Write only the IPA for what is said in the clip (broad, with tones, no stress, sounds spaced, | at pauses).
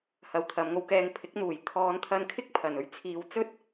h ɐ˨ w t̪ʰ ɐ˨˧ m ŋ o˧ w k ɛː˨ ŋ pʰ ɪ˨˥ k̚ n̪ uː˨˩ j t̪ʰ ɔː˨˧ n t̪ʰ ɐ˧ n kʰ ɪ˥ k̚ pʰ ɐ˨˩ n ɵ˥ ɥ t͡sʰ iː˨˧ w t͡s ɵ˥ t̚